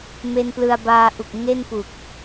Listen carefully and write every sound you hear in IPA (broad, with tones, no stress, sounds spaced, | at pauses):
m e˧ n p l ɯ˧ a̯ b aː˧ ʔ u˨˩ k̚ ŋ e˥˩ n p u˨˩ k̚